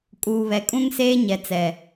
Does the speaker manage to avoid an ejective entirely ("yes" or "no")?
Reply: no